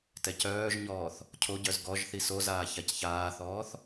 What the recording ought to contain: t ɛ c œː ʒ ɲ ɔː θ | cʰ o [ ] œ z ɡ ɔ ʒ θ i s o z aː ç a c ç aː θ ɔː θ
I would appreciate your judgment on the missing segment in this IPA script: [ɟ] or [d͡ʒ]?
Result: ɟ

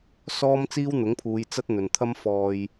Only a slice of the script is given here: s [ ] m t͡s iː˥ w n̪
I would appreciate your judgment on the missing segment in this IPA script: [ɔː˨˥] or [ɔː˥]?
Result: ɔː˥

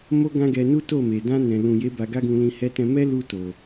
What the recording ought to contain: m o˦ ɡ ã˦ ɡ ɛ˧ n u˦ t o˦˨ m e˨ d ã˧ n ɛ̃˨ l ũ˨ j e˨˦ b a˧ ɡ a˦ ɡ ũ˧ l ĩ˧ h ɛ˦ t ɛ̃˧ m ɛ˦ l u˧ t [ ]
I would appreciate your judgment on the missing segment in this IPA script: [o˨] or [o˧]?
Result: o˨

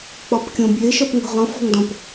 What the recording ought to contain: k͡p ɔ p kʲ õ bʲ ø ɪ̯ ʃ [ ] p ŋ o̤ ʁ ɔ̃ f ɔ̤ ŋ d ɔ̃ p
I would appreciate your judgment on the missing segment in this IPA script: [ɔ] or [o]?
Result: ɔ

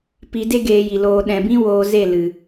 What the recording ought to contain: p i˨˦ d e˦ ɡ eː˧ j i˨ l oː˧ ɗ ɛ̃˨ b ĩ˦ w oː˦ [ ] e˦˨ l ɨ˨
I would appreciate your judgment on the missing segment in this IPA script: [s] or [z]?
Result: z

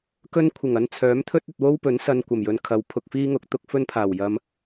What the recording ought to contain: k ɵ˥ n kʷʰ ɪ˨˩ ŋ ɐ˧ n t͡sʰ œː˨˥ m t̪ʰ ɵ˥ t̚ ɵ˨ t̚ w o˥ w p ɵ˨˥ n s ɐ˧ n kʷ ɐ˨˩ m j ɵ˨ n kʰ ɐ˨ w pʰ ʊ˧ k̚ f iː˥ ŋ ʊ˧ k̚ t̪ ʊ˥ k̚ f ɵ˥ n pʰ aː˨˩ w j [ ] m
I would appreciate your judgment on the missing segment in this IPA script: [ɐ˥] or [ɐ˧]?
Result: ɐ˧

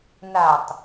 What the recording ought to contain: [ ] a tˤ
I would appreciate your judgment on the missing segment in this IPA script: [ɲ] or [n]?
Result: n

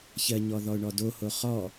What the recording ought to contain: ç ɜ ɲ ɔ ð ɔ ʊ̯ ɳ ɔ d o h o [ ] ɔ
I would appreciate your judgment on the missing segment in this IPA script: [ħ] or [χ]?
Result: χ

